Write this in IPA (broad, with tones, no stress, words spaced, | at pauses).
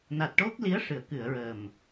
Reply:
na˨˩t̚ʈo˦˥k̚ li˧˥ə̯ʂɨ˨˩˨ə̯kɨ˨˩˨ə̯ɹəː˨˩m